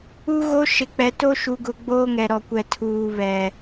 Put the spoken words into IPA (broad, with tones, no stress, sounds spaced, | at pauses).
u˦ ɣ o˦ ʃ ɪ˨ k͡p ɛ˨ t o˦ ʃ u˨ ɡ ʊ˨ ɡ͡b oː˦ ŋ ɛ˨ ɾ ɔ˨ kʷ ɛ˨ tʰ uː˨ β ɛ˨